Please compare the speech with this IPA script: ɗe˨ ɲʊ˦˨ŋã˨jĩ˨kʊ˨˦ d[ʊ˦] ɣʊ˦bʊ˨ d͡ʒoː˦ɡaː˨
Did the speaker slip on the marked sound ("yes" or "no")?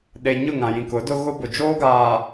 no